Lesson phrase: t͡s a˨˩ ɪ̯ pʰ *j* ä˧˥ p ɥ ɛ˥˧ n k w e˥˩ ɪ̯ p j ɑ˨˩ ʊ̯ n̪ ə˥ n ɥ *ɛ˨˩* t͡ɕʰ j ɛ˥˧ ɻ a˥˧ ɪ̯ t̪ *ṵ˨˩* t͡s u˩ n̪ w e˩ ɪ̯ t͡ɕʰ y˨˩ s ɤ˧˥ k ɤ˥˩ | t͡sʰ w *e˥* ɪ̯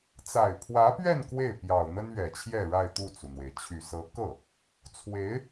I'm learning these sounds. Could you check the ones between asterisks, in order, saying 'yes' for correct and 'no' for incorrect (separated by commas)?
no, yes, no, no